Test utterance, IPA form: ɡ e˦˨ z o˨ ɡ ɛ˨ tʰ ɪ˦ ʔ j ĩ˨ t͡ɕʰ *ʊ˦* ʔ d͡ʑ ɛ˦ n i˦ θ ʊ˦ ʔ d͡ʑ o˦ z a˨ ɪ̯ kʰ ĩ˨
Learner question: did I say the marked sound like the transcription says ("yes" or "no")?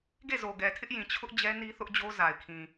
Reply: yes